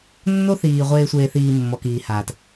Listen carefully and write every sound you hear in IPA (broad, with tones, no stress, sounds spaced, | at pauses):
nː o˦ θ iː˨ ʁʷ eː˧ sʷ eː˧ θ iː˧ mː ɔ˨ k iː˨ h aː˨ t